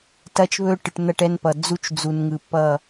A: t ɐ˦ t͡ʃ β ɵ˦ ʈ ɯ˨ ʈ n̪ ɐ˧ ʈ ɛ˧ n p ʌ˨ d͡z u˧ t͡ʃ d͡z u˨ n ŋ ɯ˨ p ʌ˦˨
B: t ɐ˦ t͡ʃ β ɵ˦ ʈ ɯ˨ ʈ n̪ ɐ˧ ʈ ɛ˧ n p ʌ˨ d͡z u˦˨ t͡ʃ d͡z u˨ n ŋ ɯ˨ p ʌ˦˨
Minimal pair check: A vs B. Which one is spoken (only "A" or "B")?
A